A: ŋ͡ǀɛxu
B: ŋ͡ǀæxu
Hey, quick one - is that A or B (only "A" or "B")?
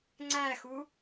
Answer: B